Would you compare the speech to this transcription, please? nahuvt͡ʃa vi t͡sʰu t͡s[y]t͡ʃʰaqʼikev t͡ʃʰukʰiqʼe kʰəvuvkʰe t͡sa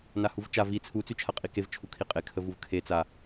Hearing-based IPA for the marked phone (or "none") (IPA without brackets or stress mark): y